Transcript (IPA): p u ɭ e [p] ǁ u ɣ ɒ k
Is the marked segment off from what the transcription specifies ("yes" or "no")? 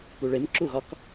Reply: yes